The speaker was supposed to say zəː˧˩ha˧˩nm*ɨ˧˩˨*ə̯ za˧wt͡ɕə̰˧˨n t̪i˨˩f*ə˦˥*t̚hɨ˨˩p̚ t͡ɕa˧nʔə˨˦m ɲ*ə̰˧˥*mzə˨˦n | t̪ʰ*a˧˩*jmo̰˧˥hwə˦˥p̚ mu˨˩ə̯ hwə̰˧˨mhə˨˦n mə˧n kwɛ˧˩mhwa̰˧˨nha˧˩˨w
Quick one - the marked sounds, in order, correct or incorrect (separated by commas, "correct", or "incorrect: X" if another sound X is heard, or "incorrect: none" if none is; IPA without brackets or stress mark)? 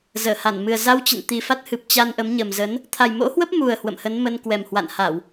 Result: incorrect: ɨ˨˩, incorrect: a˦˥, incorrect: ə˨˩, incorrect: a˨˩